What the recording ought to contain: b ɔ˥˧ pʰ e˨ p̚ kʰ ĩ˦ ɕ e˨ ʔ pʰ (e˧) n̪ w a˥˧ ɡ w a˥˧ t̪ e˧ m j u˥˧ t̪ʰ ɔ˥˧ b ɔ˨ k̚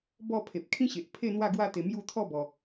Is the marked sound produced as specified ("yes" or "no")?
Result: no